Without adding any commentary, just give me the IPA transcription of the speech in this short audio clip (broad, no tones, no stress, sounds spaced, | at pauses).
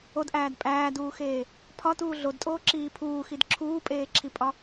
o d ʔ æː d pʼ æː d uː x eː | pʰ ɒ t uː ɮ o d tʼ oː ǁ iː pʰ uː x i d ǁʰ uː pʼ eː ǁʰ i pʼ ɒ